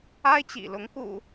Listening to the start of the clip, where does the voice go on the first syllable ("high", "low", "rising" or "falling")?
high